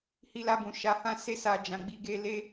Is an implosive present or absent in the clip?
absent